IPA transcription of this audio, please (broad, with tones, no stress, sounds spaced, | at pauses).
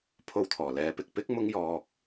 pʰ o˧ w t̪ʰ ɔː˨˩ l ɛː˨˧ p ɪ˨ k̚ p ɪ˥ k̚ m ʊ˥ ŋ j ɔː˧ k̚